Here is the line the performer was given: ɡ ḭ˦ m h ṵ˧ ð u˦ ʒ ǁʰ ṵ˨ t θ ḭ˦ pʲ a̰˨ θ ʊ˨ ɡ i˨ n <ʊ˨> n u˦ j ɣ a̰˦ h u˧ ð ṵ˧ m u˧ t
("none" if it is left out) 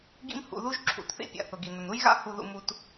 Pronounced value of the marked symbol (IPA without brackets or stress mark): ʊ˨